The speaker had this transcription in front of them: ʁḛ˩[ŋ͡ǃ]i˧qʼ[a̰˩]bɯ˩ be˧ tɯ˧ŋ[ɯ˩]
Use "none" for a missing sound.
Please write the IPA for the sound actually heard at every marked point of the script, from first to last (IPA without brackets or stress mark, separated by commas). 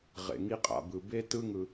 ŋ, a̰˩, ɯ˩